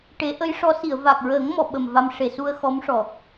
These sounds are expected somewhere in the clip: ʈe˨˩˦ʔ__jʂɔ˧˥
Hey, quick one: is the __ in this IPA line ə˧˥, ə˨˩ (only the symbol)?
ə˧˥